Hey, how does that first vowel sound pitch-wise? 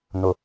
low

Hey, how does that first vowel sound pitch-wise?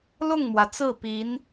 falling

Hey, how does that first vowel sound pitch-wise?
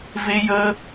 high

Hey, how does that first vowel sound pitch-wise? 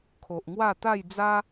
low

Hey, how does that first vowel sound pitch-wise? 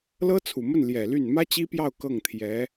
high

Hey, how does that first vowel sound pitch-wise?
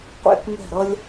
falling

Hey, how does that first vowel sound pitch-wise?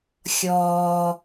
high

